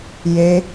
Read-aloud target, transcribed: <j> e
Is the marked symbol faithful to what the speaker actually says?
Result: yes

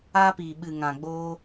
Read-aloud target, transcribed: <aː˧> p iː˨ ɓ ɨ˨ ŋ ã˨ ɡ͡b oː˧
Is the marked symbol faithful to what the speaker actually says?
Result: yes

